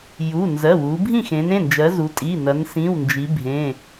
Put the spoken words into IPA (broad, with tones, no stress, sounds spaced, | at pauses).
j u˩˧˩ n z ɜ˩˧˩ w u˩˧ bʱ ĩ˥˨ x ẽ˩˧ n ẽ˩˧˩ n d͡ʒ ɜ˩˧ z u˩˧ tʼ i˩˧˩ n ɐ˩˧ n s ĩ˩˧˩ w n d͡ʒ i˩˧ bʱ ẽ˩˧˩